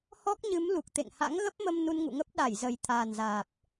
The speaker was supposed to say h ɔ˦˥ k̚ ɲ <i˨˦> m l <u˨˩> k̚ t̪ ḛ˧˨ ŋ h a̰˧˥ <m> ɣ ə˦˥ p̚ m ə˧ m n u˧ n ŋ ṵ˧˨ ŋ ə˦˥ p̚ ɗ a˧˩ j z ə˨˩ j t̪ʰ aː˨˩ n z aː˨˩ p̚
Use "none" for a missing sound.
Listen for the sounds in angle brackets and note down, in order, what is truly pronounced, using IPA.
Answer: ɨ˨˦, u˨˩, ŋ

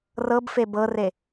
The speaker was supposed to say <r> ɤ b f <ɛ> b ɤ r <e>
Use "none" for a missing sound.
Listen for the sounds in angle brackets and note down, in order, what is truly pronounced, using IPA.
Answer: r, e, e

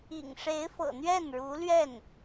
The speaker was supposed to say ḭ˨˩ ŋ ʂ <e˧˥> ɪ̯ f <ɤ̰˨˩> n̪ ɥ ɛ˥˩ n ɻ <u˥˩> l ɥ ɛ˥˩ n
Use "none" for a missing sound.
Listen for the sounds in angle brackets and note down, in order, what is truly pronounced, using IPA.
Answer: e˧˥, ɤ̰˨˩, u˧˥

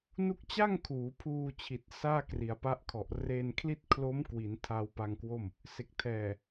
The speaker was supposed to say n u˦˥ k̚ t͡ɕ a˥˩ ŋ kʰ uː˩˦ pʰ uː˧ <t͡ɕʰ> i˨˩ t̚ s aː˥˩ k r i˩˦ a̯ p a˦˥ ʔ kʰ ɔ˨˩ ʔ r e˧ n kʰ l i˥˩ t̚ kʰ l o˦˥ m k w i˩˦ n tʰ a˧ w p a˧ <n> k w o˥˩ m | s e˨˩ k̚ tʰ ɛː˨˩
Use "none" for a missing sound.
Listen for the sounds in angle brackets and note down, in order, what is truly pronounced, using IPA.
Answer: t͡ɕʰ, ŋ

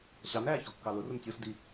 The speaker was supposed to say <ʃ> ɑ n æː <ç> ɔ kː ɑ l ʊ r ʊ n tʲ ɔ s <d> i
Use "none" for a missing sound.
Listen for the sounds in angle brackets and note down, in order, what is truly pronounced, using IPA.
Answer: ɕ, ç, d

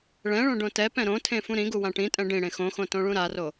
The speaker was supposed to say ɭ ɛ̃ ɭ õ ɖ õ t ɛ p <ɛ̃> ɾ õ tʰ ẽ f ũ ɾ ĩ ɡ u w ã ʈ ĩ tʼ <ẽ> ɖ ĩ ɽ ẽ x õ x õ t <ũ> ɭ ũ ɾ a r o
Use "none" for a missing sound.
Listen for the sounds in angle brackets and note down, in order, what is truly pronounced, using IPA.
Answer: ɛ̃, ɛ̃, õ

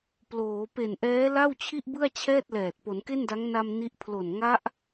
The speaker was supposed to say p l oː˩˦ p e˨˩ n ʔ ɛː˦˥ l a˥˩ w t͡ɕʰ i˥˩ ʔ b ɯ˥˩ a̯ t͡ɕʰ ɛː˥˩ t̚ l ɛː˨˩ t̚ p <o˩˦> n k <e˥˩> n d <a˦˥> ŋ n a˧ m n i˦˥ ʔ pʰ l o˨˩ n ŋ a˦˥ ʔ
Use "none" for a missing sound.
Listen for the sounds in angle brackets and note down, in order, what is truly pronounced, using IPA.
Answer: o˩˦, e˥˩, a˦˥

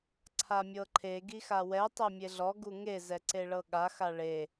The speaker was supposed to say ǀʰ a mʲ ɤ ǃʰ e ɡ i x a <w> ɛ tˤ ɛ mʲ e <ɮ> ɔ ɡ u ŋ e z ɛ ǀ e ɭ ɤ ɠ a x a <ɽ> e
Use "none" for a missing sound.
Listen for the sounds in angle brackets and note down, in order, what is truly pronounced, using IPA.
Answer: w, ɮ, ɭ

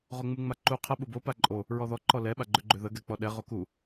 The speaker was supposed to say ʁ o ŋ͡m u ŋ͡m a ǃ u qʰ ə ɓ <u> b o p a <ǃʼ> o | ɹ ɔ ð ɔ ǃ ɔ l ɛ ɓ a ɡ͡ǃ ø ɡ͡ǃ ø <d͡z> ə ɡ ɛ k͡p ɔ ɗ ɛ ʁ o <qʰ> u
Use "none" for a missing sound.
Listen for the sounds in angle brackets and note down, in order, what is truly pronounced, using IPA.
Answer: u, ǃʼ, ð, k

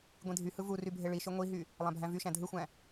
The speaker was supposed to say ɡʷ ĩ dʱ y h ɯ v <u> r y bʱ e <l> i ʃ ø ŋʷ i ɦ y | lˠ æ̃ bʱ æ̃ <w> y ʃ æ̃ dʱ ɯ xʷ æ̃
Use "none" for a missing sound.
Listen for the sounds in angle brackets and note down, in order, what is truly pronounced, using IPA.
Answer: u, ɭ, v

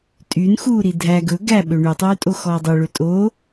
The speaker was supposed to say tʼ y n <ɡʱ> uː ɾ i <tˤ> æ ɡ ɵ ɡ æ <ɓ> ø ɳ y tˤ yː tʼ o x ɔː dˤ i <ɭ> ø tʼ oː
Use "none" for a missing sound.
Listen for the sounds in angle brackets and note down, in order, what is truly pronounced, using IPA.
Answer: x, dʱ, ɓ, ɭ

